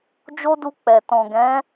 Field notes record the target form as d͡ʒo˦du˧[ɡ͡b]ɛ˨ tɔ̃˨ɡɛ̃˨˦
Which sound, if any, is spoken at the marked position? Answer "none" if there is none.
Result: k͡p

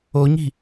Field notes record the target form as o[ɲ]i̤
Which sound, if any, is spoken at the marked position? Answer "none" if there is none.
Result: ɲ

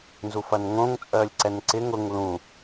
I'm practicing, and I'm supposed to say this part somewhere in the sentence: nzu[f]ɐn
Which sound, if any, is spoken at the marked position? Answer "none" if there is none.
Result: f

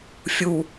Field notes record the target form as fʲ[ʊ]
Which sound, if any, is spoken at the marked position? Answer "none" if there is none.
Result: u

